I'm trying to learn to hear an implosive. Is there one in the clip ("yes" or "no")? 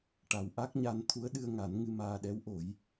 yes